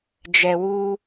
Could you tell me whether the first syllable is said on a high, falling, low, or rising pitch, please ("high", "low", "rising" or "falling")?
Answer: low